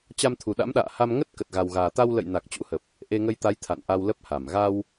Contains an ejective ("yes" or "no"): no